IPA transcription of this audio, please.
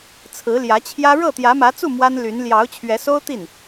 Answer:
t͡sʰ ɹ̩˧˥ l j ä˧˥ t͡ɕʰ j ä˥ ɻ ɤ˥˩ t̪ j ä˧˥ m ä˧˥ t͡s u˥˩ m w a˥ n l y˧˥ n l j ɑ˧˥ ʊ̯ t͡ɕʰ ɥ ɛ˧˥ s o˥ ʊ̯ t̪ i˥˩ n

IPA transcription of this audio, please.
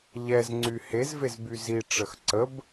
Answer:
ʎ ɛ z ŋ͡ǀ y h e z v e z b y z i ʈ͡ʂ ə x ǀ ə b

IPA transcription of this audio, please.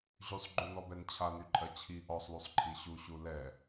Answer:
ʑ y sˤ ɡ͡ǃ u n ɔ b ɛ n t͡ɕʰ a n y ǃʼ ɜ t͡ɕʰ i ʔ ɔ sˤ l u sˤ ǃʰ i ɕ u ɕ u l ɛ

